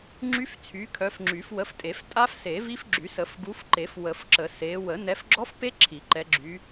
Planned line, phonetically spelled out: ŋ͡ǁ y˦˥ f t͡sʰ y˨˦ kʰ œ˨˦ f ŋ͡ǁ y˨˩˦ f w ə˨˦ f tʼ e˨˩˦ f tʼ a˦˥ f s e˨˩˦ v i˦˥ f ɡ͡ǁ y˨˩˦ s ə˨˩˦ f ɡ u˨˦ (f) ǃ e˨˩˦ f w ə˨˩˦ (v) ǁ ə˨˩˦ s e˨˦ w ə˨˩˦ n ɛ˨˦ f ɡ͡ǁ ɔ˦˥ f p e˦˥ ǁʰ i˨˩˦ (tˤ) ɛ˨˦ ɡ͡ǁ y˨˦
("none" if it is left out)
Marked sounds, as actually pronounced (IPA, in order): f, f, ǃ

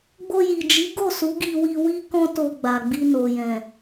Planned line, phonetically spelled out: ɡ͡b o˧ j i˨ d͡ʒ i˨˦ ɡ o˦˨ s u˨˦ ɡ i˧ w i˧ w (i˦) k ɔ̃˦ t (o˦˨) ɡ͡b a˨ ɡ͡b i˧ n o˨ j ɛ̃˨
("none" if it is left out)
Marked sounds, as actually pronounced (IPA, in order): i˦, o˧

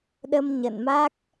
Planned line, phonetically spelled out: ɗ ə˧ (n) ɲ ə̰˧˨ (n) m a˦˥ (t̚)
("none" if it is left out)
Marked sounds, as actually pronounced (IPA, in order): m, n, k̚

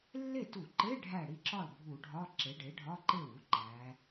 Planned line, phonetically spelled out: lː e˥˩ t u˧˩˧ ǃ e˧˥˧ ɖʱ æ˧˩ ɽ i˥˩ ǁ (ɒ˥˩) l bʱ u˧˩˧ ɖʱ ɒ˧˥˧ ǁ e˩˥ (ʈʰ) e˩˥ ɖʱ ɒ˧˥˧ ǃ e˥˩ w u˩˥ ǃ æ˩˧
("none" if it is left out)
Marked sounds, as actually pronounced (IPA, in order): ɒ˥˩, ɖ

